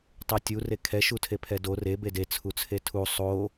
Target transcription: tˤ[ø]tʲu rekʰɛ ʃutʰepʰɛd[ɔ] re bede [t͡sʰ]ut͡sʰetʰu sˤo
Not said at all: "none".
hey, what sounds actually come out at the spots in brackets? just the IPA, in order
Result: e, o, t͡sʰ

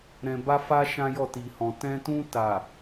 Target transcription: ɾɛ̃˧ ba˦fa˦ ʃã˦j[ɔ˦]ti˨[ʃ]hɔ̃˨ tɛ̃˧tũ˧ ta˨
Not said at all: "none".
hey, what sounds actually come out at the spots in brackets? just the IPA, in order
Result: ɔ˦˨, none

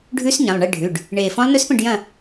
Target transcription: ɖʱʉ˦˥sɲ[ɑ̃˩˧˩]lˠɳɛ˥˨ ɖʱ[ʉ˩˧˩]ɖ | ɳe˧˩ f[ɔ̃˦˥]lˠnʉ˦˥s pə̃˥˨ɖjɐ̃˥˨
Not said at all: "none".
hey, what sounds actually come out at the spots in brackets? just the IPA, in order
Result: ɐ̃˩˧˩, ʉ˩˧˩, ɔ̃˦˥

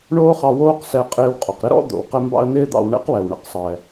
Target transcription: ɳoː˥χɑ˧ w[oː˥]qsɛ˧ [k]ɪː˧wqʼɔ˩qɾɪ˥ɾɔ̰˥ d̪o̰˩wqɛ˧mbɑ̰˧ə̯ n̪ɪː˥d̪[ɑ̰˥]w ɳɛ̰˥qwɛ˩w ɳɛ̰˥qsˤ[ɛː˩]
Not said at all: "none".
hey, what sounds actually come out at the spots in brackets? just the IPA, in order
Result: oː˥, qʼ, ɑ̰˧, ɛː˩

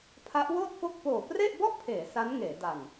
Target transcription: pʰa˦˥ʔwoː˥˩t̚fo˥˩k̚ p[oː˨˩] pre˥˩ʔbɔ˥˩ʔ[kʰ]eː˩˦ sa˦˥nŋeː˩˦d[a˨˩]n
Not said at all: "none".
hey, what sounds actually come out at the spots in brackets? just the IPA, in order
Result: oː˨˩, pʰ, a˨˩

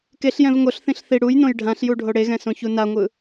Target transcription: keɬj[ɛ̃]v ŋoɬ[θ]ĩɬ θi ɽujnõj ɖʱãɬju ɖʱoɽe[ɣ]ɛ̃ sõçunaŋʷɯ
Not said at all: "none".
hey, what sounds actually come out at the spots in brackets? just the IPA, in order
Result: ɛ̃, θ, ɣ

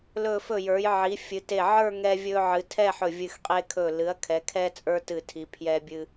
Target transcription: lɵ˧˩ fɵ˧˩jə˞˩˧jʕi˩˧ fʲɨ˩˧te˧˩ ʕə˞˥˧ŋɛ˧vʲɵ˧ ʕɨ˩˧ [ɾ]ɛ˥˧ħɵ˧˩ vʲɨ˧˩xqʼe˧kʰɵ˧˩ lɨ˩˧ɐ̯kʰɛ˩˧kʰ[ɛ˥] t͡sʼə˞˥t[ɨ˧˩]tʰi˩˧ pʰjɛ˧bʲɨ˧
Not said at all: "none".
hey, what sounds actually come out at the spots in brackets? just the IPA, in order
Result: tʰ, ɛ˧, ɨ˧˩

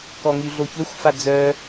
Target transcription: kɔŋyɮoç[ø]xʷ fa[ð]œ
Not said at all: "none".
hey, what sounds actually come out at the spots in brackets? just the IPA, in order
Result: ø, d͡z

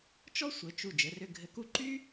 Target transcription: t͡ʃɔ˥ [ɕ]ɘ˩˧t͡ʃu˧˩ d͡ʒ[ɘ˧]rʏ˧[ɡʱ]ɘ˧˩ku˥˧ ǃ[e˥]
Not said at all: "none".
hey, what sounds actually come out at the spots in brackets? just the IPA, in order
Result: sʷ, ɘ˩˧, ɡʱ, y˥

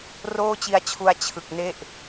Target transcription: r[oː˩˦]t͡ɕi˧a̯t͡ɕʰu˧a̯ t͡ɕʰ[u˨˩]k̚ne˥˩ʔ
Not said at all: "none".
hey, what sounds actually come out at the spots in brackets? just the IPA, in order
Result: oː˥˩, ɯ˨˩

